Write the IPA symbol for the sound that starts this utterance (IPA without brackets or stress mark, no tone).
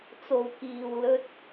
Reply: t͡s